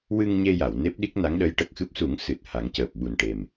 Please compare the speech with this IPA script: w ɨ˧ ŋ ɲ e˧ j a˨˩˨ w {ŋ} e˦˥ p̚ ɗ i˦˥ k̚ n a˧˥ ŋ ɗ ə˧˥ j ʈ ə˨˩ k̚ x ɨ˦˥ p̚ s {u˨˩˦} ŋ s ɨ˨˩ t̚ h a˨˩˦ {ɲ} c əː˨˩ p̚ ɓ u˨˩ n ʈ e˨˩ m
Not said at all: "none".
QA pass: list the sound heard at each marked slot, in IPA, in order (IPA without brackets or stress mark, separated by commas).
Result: n, u˨˩˦, ŋ